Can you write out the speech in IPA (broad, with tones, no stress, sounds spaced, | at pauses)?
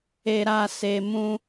e˧ ɾ a˧ s e˧ m ũ˦